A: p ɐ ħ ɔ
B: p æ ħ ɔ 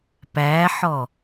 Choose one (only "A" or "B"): B